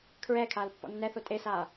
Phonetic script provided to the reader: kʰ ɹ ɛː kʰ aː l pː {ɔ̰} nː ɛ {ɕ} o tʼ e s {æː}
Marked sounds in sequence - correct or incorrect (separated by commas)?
correct, incorrect, incorrect